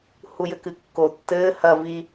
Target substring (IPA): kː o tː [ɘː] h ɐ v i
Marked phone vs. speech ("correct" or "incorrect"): correct